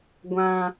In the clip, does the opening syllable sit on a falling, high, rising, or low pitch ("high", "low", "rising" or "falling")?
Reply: high